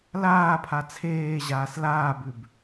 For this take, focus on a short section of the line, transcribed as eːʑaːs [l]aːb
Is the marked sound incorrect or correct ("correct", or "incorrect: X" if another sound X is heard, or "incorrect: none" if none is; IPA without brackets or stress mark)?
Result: correct